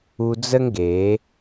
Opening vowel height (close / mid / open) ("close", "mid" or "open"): close